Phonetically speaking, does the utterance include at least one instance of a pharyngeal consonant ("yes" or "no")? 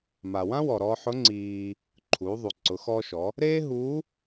yes